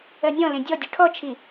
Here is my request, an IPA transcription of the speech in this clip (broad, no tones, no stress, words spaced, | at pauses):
ɜnʲɔ̃lẽ dʲɔdʲu ʈʰɔt͡ʃʰi